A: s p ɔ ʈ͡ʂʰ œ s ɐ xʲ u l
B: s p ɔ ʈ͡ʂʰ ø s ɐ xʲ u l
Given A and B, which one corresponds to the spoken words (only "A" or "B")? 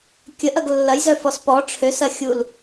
B